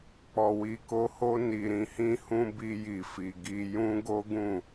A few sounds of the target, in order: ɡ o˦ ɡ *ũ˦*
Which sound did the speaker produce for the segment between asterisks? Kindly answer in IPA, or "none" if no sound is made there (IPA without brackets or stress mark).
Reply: ũ˦˨